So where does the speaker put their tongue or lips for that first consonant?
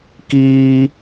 velum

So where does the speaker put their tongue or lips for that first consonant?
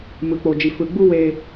lips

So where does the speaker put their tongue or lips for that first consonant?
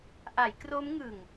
throat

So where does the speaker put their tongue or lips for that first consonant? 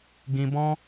velum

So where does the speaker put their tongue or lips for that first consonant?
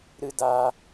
tongue tip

